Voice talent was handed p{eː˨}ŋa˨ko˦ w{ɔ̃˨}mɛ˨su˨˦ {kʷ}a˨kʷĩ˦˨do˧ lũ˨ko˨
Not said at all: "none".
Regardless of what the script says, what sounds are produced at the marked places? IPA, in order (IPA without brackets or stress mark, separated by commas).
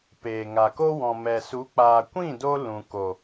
eː˨, ɔ̃˨, k͡p